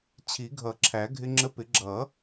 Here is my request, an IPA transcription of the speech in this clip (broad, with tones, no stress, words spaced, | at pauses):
t͡ɕʰi˨˩˦ɡʱʌ˨˩˦ǁʰæ˨˩˦ ɡʱɪ˧ŋ͡ǁə˧pɪ˨˩˦ ɡ͡ǁʌ˨˩˦